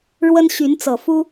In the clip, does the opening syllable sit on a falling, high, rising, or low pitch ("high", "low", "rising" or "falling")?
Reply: high